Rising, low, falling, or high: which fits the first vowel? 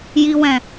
low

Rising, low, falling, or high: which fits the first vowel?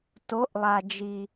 rising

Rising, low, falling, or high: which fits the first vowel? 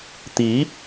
rising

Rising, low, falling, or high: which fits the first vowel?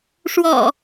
low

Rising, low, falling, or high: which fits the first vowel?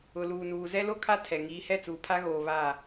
low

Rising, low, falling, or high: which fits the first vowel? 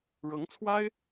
rising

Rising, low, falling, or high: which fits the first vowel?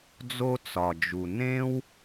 high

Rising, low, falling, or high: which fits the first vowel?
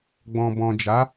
low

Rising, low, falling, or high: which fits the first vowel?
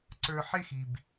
low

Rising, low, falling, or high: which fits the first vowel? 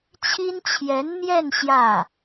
high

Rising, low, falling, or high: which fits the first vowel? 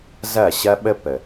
falling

